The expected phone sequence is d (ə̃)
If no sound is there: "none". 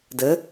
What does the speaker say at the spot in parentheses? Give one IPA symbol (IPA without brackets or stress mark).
ə